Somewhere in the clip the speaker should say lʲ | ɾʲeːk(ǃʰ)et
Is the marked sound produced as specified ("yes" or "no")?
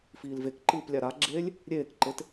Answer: no